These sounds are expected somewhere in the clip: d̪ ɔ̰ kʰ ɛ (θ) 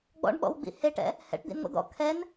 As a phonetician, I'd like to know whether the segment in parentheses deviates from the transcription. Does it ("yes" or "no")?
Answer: yes